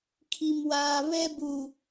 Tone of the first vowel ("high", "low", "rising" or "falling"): high